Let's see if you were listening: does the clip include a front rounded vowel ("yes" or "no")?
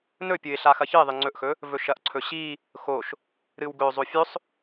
no